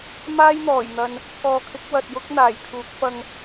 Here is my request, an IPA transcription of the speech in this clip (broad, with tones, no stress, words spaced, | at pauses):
maː˥jn̪ɔː˨˩jn̪ɐ˨n | kɔː˨kʰɪ˨˥k̚ wɐ˨t̚jʊ˥k̚ n̪aː˨˩jkʰuː˨˥k̚fɐ˧ŋ